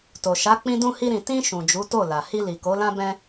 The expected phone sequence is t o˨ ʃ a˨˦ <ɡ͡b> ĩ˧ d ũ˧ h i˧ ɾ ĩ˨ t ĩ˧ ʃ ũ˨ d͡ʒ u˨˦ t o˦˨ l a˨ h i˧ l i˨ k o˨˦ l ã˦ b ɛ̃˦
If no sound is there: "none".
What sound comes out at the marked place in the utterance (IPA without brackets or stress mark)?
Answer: k͡p